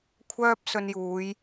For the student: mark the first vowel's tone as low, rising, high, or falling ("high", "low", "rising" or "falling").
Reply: high